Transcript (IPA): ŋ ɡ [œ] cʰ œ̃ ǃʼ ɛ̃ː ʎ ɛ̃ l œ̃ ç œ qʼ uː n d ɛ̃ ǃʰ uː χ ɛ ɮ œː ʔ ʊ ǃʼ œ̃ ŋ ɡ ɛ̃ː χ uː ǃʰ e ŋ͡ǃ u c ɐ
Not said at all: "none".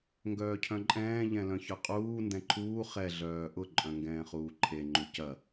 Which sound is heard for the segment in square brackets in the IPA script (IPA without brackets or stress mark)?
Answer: œː